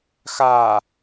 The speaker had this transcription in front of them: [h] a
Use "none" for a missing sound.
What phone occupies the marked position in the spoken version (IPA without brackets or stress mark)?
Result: x